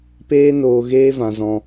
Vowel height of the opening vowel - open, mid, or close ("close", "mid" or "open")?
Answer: mid